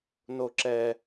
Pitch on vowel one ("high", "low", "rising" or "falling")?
low